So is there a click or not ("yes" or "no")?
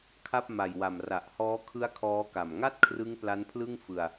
no